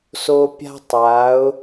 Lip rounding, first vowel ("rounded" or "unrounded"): rounded